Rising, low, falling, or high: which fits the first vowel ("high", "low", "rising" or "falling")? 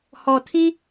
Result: low